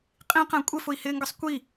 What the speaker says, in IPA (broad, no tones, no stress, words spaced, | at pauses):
qʼĩqæ̃ kʷʼɪfʊi̯hɪːŋɡʌsˤ kʷi